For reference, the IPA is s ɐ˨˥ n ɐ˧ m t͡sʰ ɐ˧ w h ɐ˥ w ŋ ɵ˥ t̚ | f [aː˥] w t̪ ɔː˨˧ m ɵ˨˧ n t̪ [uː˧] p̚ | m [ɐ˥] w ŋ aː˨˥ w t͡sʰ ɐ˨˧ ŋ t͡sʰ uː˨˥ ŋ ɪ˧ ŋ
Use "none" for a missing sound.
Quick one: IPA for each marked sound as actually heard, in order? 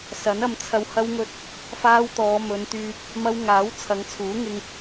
aː˥, yː˧, ɐ˥

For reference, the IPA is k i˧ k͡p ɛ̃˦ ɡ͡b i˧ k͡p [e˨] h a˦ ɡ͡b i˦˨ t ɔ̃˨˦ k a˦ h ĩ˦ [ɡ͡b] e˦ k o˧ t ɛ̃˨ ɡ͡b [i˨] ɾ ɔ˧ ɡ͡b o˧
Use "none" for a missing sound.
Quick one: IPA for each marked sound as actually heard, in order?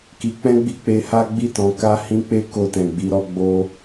e˧, k͡p, i˧

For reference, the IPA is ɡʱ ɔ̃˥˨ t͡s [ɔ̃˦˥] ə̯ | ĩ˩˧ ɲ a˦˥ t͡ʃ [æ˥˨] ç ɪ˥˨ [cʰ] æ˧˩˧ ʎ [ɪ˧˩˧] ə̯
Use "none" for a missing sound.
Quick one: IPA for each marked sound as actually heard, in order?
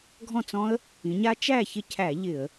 ɔ̃˦˥, æ˥˨, cʰ, ɪ˧˩˧

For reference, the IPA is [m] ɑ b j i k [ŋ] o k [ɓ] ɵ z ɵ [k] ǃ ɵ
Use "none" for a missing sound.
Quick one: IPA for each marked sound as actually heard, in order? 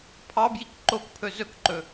pʰ, ǃ, pʰ, k

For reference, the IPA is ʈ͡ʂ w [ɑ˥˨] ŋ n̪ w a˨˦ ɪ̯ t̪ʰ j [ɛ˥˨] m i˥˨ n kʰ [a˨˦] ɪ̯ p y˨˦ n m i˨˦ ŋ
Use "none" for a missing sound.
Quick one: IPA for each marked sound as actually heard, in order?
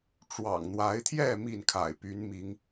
ɑ̰˨˩, ɛ˥˨, a̰˨˩

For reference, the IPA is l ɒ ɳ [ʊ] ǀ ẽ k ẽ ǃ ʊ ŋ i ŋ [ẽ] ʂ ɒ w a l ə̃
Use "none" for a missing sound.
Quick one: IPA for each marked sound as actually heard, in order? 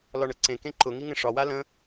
ə, ẽ

